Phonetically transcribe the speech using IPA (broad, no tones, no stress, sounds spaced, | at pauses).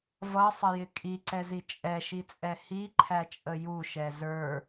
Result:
v ʌ sˤ ə j ɪ kʼ i ǀ ɛ z i t͡ʃʼ ɛ ʃ i t͡sʼ ɛ h i ǃʰ æ t͡ʃʼ ə j u ʃ ɛ z ə˞